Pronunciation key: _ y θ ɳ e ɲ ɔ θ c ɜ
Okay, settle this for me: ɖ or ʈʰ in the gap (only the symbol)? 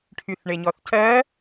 ʈʰ